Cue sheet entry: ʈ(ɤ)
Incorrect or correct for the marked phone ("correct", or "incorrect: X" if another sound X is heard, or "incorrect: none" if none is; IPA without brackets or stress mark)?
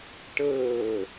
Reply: incorrect: ɤː